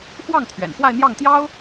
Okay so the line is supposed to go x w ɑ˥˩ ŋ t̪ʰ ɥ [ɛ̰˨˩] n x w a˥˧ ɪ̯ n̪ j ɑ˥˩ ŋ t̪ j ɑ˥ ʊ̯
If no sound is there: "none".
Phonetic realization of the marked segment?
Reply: ɛ̰˨˩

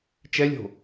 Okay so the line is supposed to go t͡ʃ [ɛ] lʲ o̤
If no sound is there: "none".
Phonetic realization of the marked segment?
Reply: ɛ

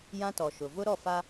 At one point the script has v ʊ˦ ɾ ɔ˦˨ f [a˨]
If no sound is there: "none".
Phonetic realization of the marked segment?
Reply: a˦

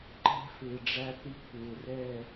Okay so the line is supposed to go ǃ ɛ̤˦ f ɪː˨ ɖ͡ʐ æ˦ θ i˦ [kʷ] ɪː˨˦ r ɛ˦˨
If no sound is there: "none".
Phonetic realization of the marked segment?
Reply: kʷ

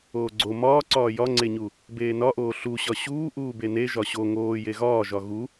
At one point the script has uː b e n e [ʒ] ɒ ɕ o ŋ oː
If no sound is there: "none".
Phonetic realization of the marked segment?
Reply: ʒ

